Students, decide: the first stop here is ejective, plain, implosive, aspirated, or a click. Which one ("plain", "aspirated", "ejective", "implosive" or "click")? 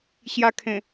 aspirated